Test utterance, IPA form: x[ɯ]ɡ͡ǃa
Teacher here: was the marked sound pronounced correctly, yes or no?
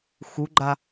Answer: no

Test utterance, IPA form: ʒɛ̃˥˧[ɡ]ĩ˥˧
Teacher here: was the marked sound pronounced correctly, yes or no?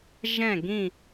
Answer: yes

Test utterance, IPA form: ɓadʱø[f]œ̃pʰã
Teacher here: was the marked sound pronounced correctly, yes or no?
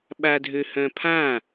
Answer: no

